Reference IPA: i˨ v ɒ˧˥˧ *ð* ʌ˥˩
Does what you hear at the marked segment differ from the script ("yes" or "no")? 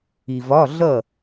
yes